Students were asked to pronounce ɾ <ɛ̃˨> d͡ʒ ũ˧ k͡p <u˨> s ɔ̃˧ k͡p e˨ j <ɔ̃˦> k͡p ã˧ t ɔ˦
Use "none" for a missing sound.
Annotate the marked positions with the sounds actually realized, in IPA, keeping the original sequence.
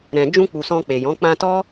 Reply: ɛ̃˨, u˨, ɔ̃˨˦

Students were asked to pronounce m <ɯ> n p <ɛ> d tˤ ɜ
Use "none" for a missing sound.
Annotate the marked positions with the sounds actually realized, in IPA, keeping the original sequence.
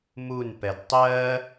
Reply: u, ɛ

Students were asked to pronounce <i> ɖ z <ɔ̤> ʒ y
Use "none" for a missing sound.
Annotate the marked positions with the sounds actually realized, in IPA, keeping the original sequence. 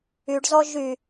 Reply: y, ɔ

